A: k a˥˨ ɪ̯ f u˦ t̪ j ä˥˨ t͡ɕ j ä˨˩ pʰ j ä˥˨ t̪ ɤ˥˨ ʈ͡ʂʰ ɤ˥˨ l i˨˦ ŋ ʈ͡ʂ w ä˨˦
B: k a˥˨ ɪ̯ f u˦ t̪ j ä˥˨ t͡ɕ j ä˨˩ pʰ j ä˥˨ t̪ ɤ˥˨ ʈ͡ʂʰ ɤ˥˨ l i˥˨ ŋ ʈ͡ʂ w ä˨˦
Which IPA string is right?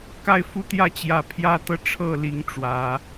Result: A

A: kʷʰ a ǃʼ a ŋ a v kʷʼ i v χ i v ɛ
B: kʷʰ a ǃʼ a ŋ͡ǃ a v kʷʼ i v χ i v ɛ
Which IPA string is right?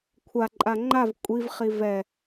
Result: B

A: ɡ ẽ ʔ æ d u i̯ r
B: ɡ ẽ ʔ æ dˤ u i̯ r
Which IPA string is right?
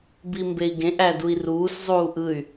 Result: A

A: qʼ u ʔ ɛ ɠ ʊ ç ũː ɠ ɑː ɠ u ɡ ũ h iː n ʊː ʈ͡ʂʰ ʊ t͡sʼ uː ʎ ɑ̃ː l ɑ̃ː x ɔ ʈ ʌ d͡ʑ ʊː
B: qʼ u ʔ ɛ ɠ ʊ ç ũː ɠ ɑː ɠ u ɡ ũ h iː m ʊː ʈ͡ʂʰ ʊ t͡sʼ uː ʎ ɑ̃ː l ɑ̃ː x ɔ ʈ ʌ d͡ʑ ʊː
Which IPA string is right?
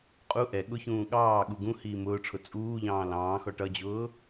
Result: B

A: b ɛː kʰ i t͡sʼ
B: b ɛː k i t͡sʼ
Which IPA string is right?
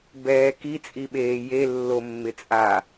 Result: B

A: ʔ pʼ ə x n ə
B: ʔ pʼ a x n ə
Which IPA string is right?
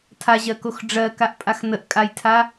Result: B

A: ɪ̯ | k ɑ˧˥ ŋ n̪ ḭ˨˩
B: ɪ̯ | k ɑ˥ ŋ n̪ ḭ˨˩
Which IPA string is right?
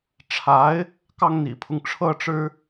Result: B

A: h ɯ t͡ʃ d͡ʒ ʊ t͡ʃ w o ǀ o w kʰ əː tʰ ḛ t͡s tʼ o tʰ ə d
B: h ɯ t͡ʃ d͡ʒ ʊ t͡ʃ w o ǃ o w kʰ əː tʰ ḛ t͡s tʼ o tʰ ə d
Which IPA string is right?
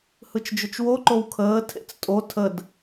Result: B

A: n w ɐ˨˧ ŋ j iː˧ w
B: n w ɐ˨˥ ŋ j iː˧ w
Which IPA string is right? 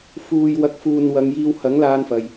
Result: A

